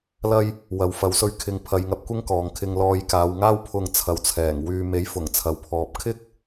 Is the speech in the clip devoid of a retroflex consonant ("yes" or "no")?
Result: yes